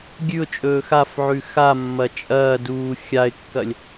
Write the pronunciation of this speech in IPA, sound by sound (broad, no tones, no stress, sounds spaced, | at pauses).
ɡʲ ʉ ʊ̯ t͡ʃʼ ɵː x a f ʕ ʉ x a mː ɐ t͡ʃʼ ɐː d uː xʲ a ɪ̯ kː ɐ lʲ